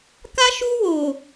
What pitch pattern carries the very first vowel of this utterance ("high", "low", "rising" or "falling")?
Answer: high